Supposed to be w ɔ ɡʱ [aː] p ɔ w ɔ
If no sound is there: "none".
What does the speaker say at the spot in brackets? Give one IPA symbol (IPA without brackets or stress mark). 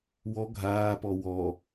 aː